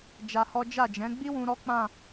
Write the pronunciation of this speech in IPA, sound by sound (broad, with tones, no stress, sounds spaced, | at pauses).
d͡ʒ a˧ h ɔ˦ d͡ʒ a˦˨ d͡ʒ ɛ̃˨˦ ɡ͡b i˦ w ũ˧ ɾ ɔ˦ k͡p ã˦˨